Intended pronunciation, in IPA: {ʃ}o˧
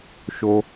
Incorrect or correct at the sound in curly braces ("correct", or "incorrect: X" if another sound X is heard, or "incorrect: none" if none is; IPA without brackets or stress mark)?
correct